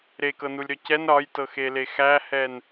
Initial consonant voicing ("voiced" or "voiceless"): voiced